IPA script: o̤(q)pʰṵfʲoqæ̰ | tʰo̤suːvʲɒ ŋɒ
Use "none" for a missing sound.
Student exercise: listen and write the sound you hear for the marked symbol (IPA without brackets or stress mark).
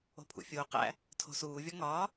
none